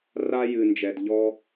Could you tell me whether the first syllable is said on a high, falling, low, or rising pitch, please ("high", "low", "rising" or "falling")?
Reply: high